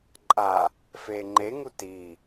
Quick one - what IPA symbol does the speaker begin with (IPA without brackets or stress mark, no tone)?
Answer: ǃʼ